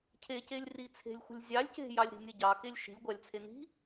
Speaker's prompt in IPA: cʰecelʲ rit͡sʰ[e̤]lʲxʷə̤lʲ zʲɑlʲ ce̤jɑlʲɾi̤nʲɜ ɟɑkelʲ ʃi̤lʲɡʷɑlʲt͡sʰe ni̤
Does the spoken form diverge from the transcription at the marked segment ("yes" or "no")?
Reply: no